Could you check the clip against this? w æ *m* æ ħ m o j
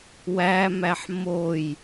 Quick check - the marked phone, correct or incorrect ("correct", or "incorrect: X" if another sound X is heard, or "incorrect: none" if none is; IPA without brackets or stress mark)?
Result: correct